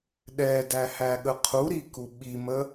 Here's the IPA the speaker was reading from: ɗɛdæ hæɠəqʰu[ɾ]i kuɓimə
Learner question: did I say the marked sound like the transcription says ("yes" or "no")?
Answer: yes